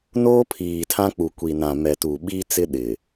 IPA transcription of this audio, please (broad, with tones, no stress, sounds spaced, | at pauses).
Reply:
n oː˦ pʰ iː˨ tʰ ã˦ k͡p u˨ kʷ i˨ n ã˨ m ɛ˨ t u˨ ɓ i˦ t͡s ɪ˦ ɗ ɪ˨